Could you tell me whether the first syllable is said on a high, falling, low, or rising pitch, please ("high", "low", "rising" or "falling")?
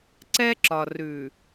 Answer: high